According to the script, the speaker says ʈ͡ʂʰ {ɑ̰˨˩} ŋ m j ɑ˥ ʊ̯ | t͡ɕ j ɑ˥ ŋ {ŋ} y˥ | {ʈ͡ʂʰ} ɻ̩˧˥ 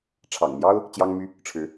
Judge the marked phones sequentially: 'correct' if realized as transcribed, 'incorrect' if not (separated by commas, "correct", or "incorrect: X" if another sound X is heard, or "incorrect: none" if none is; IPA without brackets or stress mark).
correct, incorrect: m, correct